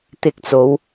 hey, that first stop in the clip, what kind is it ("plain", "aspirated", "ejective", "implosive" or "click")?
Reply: plain